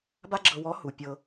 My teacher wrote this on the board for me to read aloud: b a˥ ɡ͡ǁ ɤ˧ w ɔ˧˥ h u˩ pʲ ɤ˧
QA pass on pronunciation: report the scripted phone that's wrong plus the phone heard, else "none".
none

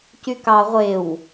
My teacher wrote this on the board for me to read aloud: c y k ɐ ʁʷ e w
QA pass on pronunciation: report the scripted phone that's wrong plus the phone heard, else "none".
ɐ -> ɑ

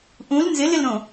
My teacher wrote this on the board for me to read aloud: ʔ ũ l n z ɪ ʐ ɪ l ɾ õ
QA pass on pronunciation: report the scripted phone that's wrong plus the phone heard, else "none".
ʐ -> l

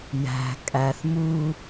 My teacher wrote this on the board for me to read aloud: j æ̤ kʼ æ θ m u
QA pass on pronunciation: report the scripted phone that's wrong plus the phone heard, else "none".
none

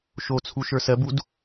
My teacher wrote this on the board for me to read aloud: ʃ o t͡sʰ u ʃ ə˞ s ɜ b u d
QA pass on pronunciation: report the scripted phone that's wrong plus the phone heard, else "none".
none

